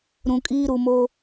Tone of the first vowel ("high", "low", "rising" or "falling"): low